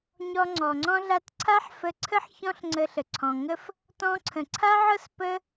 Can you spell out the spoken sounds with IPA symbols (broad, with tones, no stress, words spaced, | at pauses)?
ɲɔ˧ŋ͡ǀɔ˨ŋ͡ǀɔ̃˦ɮa˦t ǀʰa˦ħfə˧ǀʰə˦ħ çɔ̃˦ɬŋ͡ǀə˧ɬə˨ ǀʰɔ̃˨ŋə˦f | tɔ̃˧ǀʰə̃˨ ǀʰa˦ʕɤ˦s pə˦